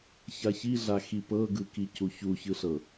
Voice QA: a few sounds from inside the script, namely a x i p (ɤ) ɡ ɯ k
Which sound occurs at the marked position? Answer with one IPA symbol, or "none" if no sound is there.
ɤ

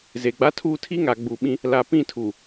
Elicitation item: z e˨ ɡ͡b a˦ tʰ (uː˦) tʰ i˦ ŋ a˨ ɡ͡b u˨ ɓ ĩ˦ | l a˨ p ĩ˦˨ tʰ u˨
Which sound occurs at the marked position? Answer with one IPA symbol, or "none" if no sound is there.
uː˦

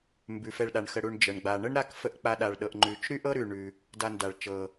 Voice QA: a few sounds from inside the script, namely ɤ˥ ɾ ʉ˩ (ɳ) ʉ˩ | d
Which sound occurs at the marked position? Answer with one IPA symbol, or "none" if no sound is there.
ɳ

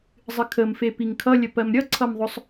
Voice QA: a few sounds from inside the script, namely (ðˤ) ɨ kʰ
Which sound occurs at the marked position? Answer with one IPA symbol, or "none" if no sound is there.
zˤ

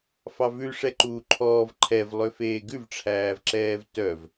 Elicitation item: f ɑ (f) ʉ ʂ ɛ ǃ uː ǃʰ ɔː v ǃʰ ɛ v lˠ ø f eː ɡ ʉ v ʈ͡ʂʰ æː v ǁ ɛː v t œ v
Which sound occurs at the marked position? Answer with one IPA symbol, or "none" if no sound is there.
v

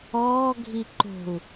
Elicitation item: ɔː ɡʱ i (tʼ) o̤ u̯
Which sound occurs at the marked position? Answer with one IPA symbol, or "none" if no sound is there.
ǃ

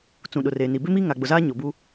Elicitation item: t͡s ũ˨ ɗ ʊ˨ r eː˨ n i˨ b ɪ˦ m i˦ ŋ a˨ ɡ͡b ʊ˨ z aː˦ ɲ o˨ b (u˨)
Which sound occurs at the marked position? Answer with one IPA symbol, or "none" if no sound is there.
u˦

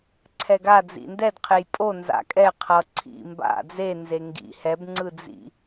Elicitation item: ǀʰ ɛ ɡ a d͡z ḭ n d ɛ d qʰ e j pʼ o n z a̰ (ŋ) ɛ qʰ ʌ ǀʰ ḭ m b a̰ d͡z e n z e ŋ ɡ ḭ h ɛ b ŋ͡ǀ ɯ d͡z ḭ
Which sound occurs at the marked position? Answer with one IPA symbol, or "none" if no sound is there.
kʼ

